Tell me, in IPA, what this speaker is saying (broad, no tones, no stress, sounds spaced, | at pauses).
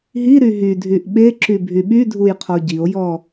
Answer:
ɦ i ɾ y ɦ y dʱ y ʔ ɓ e ǁ y bʱ y ɓ y dʱ u j qʰ ɔ ɟ i o̯ j ɔ